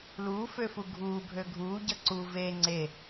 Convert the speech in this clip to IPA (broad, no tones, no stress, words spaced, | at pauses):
luːføfu ɡʱuːbʱø ɡʱuːɟʌ ǀu ve ŋ͡ǀe